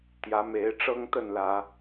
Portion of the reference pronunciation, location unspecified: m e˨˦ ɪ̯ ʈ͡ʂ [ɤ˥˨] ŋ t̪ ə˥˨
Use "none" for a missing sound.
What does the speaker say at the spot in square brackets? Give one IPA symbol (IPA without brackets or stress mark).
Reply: ɤ˦